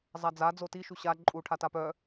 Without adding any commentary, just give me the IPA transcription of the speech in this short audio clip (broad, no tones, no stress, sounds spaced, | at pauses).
zˤ a d͡z a d͡z o t i ʃ u ɕ a ǃʼ u ʈʰ a t a p œ